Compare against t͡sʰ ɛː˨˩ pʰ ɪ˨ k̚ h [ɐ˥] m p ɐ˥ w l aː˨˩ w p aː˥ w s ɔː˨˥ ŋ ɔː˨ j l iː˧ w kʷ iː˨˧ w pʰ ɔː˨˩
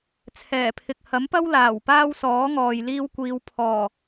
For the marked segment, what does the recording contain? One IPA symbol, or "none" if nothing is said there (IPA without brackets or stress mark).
ɐ˨˥